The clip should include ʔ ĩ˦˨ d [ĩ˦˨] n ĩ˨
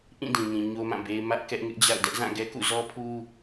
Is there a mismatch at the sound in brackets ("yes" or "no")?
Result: yes